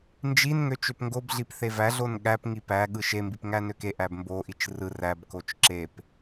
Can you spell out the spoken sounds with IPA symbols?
n d͡ʒ i n ŋ ø t͡ʃ ø p ŋ ɡ o b ɮ i p θ e v æ ɮ o n ɠ æ p ŋ i p æ ɠ ɯ ʃ e m b i p ŋ æ n ø k e ʔ æ b m b o ʔ i t͡ʃ r ɯ r æ b k o t͡ʃ ǁ e p

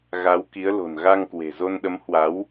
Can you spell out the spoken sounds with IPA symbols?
ɣ a˨˦ w k i˨˦ ə̯ l o̤˨˩ n ɣ a˧ ŋ k w e̤˨˩ z o˧ n ɗ ə˨˦ m h w a˨˦ w

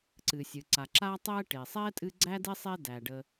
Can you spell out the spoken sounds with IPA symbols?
ǀ ɨ˩ sʲ ɨ˩ ǀ a˩ ǁ a˦ tˤ ɛ˦ ʈ e˩ sˤ ɛ˥ tʼ ɨ˦ ɡ͡ǀ æ˥ d e˥ sˤ e˦ d æ˩ ɖ ə˨

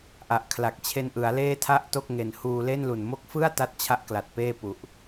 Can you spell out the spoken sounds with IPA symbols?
ʔ a˨˩ ʔ kʰ l a˨˩ k̚ t͡ɕʰ e˧ n ʔ ɯ˩˦ a̯ l eː˥˩ tʰ a˥˩ ʔ t o˥˩ k̚ ŋ e˨˩ n h uː˧ l e˥˩ n l u˨˩ n m o˦˥ k̚ f ɯ˥˩ a̯ t a˦˥ t̚ t͡ɕʰ a˦˥ ʔ k l a˨˩ t̚ p eː˥˩ p u˨˩ ʔ

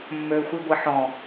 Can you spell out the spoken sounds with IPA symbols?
mː ø xʷ i ɡʷ i ħ ɔ̃

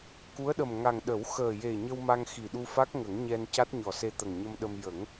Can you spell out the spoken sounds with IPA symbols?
k u˧˥ ə̯ ɗ ə˨˩ m ŋ a˨˩ ŋ ɗ ə˨˩˦ w x əː˨˩ j e˨˩ ɲ ə˧ w m a˧ ŋ x i˨˩ ɗ u˧ f a˦˥ k̚ ŋ ə˨˩˦ ŋ ɲ ɛ˧ n c a˦˥ t̚ ɲ ɔ˨˩ s e˧ t̪ ə˨˩ ŋ ɲ ə˧ m ɗ ə˧ m j ə˨˩˦ ŋ

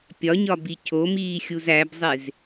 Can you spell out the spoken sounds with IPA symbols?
pʲ ɒ ɲ ɒ b i cʰ o m iː xʲ u z æ b zˤ e z

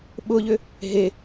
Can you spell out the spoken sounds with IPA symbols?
ɓ ʊ ʎ ʏ | ɦ e

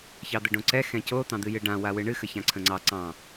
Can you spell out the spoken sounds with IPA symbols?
ç ɑ d̪ ə ɖ õ ǀ ɛ x ɛ̃ c o t̪ ɑ̃ d̪ ɨ j ɨ ɖ ã w a w ɨ ɳ ɨ x ə ç ã ǀʰ ə̃ ŋ͡ǀ ɑ ǀ ɑ̃

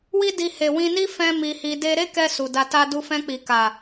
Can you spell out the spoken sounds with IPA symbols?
w i˦ d i˧ h e˨ w ĩ˧ n i˦ f ɛ̃˦ m i˧ h i˧ d e˦ ɾ e˦ k ɛ˧ s u˨ d a˧ t a˦ d u˧ f ɛ̃˧ k͡p i˨ k a˨

